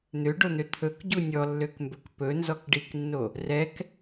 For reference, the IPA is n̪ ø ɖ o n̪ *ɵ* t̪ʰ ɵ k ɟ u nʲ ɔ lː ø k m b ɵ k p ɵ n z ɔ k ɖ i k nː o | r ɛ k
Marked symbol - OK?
no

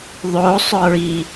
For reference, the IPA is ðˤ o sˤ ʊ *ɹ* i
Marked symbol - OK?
yes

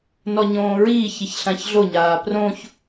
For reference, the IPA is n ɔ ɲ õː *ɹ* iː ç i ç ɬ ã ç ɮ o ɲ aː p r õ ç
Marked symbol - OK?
yes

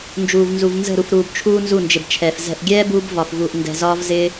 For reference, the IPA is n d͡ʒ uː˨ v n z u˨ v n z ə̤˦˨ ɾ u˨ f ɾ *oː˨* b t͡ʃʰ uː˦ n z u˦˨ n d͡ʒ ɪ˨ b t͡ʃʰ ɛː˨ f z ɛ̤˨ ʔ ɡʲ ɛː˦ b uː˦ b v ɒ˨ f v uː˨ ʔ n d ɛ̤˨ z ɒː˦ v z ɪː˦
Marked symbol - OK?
no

